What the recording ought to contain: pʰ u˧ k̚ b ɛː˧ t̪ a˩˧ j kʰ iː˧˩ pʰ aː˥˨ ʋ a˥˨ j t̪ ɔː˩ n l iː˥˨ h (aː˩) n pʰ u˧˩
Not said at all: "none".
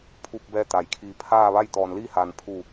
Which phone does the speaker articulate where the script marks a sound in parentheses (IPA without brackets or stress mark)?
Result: aː˩